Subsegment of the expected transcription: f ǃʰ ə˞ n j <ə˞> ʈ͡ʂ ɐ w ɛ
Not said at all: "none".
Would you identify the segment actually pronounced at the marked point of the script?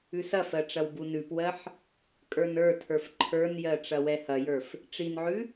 ɜ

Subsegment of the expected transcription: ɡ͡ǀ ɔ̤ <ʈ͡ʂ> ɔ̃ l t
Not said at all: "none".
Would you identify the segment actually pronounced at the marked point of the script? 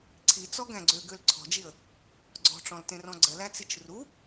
ʈ͡ʂ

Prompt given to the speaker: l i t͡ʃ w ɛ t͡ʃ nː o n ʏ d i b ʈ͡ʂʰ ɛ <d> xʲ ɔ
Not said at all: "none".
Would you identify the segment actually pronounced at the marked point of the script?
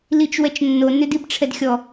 d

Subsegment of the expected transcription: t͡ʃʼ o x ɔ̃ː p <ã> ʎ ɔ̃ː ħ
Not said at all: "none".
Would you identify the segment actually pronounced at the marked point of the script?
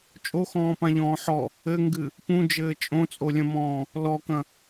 ã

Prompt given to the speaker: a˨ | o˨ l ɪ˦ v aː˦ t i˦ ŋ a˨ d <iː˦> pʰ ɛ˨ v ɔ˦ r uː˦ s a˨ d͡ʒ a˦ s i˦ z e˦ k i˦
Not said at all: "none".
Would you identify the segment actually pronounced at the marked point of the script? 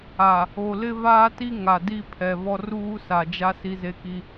i˦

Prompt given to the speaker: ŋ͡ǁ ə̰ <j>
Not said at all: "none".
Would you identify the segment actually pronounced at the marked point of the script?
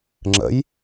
j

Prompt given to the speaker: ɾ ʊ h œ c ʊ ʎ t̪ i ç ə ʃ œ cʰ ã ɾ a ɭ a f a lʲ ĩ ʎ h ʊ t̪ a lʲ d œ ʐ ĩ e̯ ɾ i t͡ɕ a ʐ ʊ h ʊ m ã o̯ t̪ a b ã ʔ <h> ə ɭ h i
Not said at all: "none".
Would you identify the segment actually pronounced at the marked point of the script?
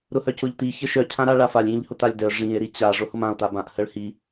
h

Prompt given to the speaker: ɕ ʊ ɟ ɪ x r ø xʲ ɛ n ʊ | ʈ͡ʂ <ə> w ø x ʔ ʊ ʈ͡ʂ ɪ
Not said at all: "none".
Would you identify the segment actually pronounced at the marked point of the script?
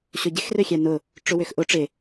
ʊ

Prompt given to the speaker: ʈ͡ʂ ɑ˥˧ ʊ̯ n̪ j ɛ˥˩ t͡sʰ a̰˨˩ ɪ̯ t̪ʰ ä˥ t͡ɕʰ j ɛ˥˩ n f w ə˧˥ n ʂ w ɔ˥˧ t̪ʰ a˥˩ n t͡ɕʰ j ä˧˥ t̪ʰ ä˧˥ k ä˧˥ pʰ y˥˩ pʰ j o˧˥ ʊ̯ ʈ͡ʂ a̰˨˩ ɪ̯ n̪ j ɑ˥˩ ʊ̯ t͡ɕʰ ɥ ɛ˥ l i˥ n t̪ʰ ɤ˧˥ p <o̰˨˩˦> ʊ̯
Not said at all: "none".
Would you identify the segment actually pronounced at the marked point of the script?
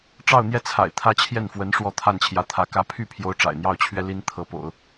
o̰˨˩˦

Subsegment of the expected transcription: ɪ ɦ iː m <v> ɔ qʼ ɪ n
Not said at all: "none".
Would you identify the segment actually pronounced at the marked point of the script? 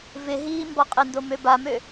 b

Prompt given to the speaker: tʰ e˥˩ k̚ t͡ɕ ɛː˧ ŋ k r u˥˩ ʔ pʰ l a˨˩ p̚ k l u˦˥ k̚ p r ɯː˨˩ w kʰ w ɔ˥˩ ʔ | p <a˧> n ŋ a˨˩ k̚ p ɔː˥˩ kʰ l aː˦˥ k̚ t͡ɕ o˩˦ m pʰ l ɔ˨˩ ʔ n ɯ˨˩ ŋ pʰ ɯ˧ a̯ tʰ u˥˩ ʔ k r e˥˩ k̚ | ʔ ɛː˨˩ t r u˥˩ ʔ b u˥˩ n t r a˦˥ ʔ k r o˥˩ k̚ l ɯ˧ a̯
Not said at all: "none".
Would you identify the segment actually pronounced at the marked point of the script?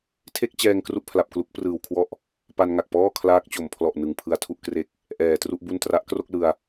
a˧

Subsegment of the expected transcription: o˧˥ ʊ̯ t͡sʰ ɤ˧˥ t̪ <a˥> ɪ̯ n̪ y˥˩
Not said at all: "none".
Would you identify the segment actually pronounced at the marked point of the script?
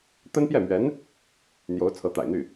a̰˨˩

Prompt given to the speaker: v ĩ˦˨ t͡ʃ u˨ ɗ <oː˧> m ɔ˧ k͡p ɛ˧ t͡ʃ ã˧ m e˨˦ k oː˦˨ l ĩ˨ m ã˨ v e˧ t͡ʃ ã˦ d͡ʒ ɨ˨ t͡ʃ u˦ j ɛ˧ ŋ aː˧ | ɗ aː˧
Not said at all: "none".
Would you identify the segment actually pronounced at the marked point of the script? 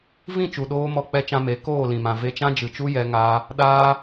oː˧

